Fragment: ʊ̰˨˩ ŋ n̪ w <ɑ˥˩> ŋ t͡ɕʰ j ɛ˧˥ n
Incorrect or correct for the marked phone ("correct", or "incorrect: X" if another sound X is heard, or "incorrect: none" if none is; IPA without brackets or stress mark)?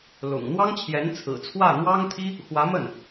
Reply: incorrect: ɑ˥